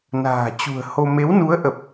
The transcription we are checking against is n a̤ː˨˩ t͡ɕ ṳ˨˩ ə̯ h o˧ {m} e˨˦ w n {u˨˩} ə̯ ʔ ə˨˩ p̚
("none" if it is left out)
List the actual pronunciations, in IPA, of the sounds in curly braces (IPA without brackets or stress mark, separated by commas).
m, u˨˦